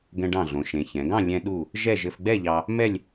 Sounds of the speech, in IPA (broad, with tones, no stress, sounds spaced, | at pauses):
ɡ ɛ̃˧ ɖ ɑ̃˧˩ ɮ õ˩˧ ʃ ẽ˩˧ ç ɛ̃˩˧ ɡ ɑ̃˥˧ lʲ ɛ̃˧ ɗ u˥˧ | ʒ ɛ˥˧ ʒ ɘ˧ f ɡ͡b ɛ˥˧ ʎ ɑ˧ | m ɛ˥˧ lʲ